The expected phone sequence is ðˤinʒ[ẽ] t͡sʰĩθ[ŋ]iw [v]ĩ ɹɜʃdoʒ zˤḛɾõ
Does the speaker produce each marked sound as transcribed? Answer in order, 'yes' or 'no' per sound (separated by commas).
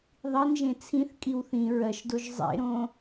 yes, no, no